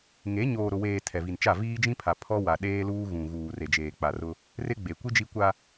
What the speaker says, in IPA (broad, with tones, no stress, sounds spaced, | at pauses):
ŋ e˨˦ ɲ oː˨ ɾ ʊ˨ w eː˨ tʰ ɛ˨ v i˨ n t͡ʃ a˦˨ v iː˦ d͡ʒ ĩ˦ pʰ a˨ pʰ ɔ˦ w a˨ ɗ eː˦ l uː˦ ɣ ũ˨ ɣ uː˨ r e˨ d͡ʒ eː˨ k͡p a˨ r ʊ˦ | r ɪ˦ ɡ͡b e˨ kʷ i˦ d͡ʒ i˦ kʷ a˦